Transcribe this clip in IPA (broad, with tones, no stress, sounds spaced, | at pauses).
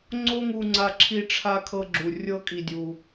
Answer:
ŋ͡ǀ o˦ ŋ u˧ ŋ͡ǀ a˧ ǁʰ i˧ ʈ͡ʂʰ a˧ kʰ ɤ˧ ɡ͡ǁ u˨ rʲ ɤ˦ kʼ i˧ dʲ u˧